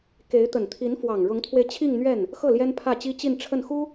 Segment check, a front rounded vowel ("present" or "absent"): absent